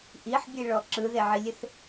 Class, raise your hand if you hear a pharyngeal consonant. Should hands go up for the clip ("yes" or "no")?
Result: yes